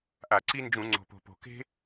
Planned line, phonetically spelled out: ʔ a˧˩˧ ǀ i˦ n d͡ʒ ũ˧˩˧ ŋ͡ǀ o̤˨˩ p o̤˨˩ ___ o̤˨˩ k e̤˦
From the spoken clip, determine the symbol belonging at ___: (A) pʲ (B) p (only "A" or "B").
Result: B